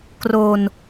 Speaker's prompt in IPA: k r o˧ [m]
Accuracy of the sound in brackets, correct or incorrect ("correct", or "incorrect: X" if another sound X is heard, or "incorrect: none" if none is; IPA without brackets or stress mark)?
incorrect: n